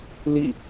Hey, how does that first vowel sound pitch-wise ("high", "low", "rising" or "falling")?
falling